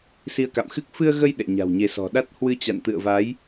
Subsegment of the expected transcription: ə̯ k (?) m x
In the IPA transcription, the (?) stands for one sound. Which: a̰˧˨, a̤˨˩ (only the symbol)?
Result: a̰˧˨